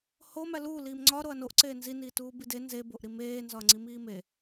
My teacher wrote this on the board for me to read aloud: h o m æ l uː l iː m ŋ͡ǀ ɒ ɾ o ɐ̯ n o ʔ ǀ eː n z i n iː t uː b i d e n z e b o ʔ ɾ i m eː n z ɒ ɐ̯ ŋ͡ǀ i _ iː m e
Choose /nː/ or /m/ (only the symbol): m